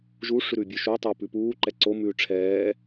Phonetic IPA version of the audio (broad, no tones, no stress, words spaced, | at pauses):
ʒu ʂʉɾʉːbʲʉːʃu tˤuːpʉpuː ǃɛǀo mʉːʈ͡ʂʰɛː